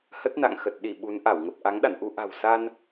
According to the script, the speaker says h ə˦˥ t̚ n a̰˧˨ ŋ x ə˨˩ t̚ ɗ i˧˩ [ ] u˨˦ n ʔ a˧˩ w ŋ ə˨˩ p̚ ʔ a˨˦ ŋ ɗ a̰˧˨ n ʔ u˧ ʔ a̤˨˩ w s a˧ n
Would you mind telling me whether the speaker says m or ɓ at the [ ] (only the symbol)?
ɓ